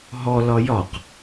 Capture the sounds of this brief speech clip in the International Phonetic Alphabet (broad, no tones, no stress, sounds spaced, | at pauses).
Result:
ɦ ɔ l ɒ j ɒ q